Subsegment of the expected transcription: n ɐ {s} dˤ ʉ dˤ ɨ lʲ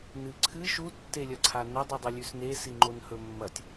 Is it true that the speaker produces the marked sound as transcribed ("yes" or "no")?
no